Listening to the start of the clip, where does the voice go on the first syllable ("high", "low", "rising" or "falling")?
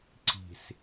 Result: low